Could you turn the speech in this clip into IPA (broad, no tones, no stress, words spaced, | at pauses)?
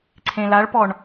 ǀʰẽlaɭpɔɳ